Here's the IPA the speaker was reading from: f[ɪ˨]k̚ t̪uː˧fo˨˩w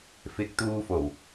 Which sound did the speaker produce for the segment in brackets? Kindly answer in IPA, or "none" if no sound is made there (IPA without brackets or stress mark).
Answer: ɪ˨